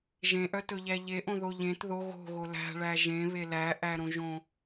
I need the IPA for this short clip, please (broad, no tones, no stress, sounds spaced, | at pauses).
ʒ ẽ ʔ œ t ɵ ʎ æ ʎ e ʔ õ ð o ʎ ẽ t ð o ɣ o̤ ɣ o l æ̤ ɭ æ ʒ ẽ β e l æ ʔ æ ɾ õ ʒ õ